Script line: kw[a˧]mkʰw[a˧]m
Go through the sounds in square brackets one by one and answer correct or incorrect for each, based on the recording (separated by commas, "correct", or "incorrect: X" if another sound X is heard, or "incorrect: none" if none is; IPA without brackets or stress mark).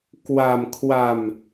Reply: correct, correct